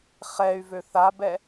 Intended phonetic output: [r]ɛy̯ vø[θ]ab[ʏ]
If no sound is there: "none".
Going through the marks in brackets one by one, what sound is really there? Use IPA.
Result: χ, θ, ɛ

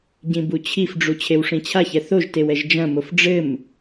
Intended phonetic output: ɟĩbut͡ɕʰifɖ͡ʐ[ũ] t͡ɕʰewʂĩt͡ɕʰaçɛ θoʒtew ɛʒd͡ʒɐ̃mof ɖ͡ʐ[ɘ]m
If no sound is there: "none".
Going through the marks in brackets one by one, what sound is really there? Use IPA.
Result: u, ɘ

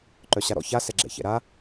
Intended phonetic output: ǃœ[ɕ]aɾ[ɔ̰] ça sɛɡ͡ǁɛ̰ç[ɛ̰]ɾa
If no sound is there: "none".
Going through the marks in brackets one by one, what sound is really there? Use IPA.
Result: ɕ, ɔ̰, ɛ̰

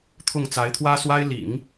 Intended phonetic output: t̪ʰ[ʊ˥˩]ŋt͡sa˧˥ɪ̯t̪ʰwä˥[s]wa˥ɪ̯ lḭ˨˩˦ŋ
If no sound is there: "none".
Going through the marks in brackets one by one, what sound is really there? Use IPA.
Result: ʊ˥˩, s

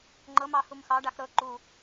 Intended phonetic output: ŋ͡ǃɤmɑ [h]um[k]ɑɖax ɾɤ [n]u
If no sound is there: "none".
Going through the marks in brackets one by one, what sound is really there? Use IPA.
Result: h, x, ǃ

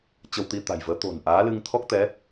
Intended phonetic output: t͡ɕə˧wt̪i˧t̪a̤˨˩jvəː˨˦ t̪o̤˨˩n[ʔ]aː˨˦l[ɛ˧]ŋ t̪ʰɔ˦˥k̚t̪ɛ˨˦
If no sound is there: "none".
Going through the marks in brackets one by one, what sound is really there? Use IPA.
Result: ʔ, ɨ˧

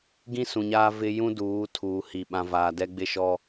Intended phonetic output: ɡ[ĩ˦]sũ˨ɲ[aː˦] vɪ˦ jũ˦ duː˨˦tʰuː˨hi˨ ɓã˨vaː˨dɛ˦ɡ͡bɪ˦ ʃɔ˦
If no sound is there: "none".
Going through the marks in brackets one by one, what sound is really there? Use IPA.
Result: ĩ˦, aː˦

